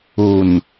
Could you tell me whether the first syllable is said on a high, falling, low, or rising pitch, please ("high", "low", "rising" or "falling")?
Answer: low